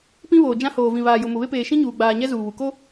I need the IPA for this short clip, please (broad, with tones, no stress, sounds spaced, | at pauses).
p ĩ˦ β oː˨ d͡ʒ ã˦ h oː˨ v ĩ˨ β aː˨ j ʊ˨ m ʊ˨ β e˦ p eː˨ ʃ ĩ˦ ɲ uː˨ ɡ͡b aː˨ ɲ ɛ˦ z uː˨ β u˨ k o˦